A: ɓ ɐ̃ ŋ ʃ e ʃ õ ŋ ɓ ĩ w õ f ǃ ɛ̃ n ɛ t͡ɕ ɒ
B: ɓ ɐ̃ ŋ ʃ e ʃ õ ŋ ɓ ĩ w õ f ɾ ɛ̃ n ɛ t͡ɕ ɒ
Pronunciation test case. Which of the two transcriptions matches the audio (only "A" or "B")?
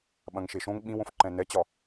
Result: A